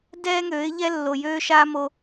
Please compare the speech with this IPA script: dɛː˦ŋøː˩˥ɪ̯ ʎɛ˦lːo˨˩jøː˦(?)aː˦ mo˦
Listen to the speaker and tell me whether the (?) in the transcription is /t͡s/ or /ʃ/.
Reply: ʃ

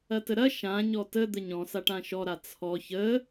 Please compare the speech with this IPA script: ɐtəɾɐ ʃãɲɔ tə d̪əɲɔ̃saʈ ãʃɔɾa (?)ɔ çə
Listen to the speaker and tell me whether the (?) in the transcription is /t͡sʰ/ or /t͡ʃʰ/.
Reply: t͡sʰ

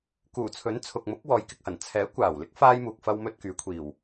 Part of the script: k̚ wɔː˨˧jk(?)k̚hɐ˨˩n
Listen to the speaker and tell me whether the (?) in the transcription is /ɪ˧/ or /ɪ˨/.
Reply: ɪ˨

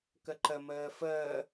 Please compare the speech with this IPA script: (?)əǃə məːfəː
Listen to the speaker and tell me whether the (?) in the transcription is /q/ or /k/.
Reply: k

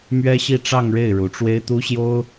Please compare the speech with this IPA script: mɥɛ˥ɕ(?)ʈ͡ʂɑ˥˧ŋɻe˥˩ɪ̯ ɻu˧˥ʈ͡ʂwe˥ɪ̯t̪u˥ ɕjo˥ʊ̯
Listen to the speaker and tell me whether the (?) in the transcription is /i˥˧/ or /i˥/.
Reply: i˥˧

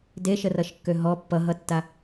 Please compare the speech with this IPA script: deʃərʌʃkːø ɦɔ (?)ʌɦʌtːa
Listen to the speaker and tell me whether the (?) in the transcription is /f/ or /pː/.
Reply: pː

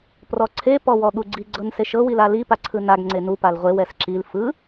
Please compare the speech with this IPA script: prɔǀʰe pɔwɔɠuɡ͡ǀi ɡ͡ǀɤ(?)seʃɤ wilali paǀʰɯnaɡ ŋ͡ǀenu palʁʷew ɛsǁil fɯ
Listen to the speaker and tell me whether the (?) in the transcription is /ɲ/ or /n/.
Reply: n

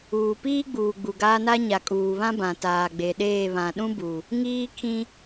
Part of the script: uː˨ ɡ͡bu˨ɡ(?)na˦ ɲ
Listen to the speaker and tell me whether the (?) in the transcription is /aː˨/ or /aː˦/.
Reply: aː˦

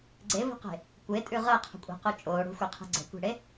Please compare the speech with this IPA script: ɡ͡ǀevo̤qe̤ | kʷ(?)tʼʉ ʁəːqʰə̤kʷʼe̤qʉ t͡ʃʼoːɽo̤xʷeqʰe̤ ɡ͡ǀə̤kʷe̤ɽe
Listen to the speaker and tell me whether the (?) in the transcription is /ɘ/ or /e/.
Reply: e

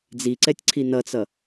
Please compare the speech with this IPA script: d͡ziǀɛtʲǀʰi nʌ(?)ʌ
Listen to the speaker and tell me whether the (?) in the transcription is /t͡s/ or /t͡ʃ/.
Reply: t͡s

